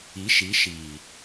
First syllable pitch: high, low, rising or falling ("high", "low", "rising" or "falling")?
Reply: rising